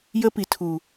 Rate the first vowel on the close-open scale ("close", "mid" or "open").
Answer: mid